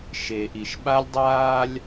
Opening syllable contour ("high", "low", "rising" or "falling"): low